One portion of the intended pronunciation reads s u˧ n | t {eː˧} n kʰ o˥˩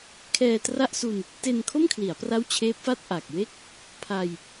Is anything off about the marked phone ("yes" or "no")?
yes